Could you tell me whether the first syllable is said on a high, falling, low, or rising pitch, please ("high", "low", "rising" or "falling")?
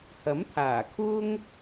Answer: rising